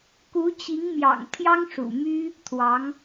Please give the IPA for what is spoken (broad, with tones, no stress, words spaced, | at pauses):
ku˧˥t͡ɕi˧˥ŋmjɑ̰˨˩ŋ t̪ʰjɑ˥ŋʂṵ˨˩my˥ | t̪ʰwɑ˧˥ŋ